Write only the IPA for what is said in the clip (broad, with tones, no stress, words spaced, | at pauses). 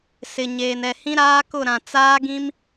sɪ˨ ɲeː˨nɛ˨hĩ˦ ɾaː˦kʊ˦˨ɾã˨ t͡saː˦ɡĩ˦m